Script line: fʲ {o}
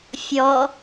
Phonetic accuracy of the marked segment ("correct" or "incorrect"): incorrect